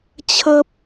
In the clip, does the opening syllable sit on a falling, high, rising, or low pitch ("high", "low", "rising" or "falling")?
high